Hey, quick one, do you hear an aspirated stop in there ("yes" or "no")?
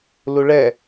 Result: no